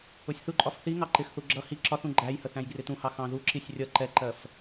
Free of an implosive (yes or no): yes